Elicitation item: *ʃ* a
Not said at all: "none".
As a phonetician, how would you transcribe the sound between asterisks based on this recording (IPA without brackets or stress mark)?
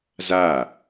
z